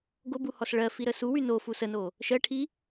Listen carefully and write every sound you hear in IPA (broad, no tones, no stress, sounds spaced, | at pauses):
ɡ o b u h ɔ s ɭ ɜ f i ɾ ə s u w y n o f u s ə n o | ʃ ɜ ʈʰ i